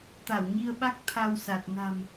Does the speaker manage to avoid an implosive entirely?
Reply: no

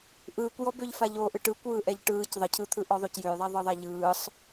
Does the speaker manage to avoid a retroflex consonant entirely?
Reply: no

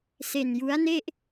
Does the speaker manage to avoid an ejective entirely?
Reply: yes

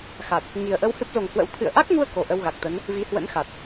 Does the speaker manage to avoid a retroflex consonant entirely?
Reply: yes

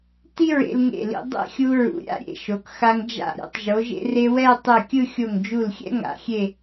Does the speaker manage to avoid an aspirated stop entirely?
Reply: yes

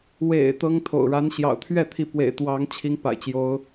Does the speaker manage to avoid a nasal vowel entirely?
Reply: yes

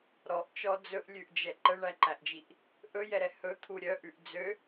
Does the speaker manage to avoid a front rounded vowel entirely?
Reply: no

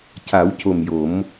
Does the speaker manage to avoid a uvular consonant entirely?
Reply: yes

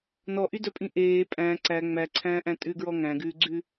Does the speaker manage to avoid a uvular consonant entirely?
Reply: yes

